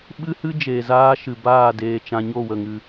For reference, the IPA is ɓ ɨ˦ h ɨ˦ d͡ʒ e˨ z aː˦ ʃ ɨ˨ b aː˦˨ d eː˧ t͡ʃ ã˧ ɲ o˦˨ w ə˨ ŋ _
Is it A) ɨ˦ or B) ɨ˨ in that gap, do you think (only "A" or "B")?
B